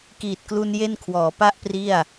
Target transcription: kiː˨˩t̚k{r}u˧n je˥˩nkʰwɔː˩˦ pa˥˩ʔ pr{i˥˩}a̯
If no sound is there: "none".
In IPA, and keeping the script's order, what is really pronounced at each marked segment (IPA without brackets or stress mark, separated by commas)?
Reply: l, i˥˩